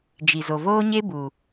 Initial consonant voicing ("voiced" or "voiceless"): voiced